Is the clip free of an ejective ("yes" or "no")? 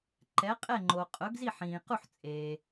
no